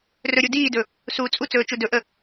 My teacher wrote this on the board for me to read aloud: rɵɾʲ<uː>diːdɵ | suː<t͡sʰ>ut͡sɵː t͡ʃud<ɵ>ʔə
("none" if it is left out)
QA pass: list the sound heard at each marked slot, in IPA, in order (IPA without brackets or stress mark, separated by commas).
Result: u, t͡sʼ, ɵ